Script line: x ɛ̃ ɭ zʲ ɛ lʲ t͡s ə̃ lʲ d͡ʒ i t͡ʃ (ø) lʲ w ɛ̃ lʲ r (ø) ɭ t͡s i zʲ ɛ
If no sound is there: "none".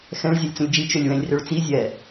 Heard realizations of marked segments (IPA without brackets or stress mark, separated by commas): ø, ø